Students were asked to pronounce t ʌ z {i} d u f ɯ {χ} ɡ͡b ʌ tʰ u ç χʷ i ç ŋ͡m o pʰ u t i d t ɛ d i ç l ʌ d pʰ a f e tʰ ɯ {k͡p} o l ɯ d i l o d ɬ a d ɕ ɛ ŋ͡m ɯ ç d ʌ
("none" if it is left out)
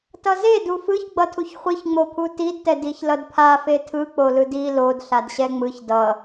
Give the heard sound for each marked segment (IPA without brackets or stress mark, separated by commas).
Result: e, ç, k͡p